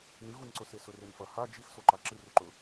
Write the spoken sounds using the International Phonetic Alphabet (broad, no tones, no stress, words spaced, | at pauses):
nɨɣunǀɵse sɵrenfɐ ha d͡ʒixsoǃa ǁɨruǃɵ